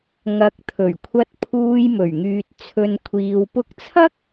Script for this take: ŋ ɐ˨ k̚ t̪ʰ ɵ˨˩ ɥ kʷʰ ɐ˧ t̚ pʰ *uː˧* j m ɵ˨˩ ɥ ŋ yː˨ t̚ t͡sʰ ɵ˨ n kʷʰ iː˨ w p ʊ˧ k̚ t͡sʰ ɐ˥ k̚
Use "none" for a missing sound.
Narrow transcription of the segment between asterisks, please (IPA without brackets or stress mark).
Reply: uː˧